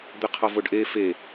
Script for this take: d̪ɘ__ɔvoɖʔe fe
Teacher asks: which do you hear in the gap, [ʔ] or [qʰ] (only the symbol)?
qʰ